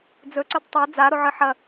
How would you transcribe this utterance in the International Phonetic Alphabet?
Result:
d͡z ɵ ǀ ɵ d tˤ a d͡z a ɾ o ʕ ɨ ħ ɐ

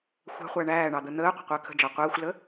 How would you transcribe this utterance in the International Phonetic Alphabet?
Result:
xʷ æ̤ χʷ æ ɳ æː ɳ ɑ d̪ ə n̪ əː qʷ ə̤ qʷ əː kʰ ə̤ d͡ʒ ɑ qʷ əː xʷ l ə

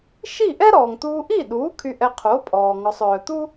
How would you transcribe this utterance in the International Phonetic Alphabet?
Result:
ʃ i˥˩ ʔ ɛ˥ ɾ ɔː˩ ŋ t̪ uː˧ ʔ i˥˩ ɗ uː˩˥ kʰ y˧ ʔ ɛ˧ qʰ o˩˥ pʼ ɔː˩ ŋ ɔ˩ sˤ œː˩ t̪ u˥

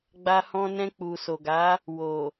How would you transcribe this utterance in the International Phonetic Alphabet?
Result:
ɡ͡b a˧ h ɔ̃˧ n ɛ̃˧ k͡p u˨ s o˨ ɡ a˨˦ | w o˨

